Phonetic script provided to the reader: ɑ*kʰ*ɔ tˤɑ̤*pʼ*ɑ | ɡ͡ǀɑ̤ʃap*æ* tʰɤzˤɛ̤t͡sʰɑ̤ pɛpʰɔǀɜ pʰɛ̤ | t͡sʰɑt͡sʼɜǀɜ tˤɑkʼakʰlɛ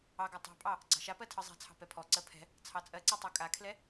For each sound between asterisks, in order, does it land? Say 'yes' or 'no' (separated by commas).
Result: no, yes, no